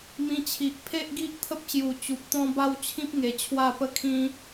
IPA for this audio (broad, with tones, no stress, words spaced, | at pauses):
mĩ˧t͡ɕʰi˨ʔ pʰe˦ʔɡi˦ʔt̪ʰə˦p̚ɕju˨˩ t͡ɕu˨p̚t̪ɔ̃˦ ba˦wt͡ɕʰĩ˦p̚ŋe˨˩ t͡ɕʰwa˥˧pə˦kʰĩ˦